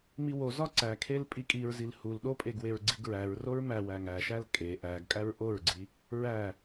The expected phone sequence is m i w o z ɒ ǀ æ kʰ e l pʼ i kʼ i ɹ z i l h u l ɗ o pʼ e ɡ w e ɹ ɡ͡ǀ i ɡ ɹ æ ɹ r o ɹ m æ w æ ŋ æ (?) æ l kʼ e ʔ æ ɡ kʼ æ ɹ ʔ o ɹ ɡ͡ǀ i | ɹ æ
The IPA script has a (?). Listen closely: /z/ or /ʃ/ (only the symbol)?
ʃ